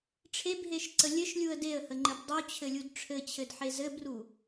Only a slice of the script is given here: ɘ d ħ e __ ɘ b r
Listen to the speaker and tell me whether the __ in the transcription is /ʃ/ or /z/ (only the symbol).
z